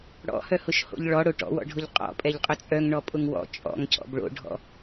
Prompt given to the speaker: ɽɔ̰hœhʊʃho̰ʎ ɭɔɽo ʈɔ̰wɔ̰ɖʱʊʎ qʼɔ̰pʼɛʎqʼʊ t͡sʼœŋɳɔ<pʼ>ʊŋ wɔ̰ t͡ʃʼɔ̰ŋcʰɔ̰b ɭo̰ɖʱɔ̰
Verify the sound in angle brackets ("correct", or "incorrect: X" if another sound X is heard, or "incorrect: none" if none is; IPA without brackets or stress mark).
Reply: correct